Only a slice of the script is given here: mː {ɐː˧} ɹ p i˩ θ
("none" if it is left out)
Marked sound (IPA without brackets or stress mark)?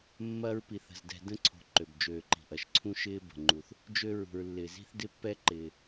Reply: ɐː˧